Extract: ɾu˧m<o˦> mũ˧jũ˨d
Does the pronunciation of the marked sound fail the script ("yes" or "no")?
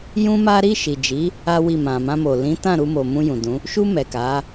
yes